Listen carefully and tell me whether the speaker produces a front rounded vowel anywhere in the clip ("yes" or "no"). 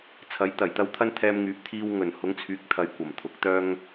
yes